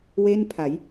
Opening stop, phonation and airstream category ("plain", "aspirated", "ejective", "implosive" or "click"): aspirated